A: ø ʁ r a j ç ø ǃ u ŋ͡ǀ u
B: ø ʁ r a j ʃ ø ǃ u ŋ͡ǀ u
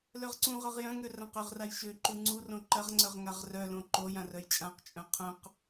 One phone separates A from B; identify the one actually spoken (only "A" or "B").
B